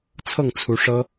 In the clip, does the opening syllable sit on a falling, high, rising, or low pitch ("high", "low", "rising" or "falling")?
falling